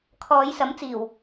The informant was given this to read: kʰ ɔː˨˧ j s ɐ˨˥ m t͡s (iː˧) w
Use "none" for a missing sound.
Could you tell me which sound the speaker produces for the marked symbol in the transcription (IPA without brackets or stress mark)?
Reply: iː˨˩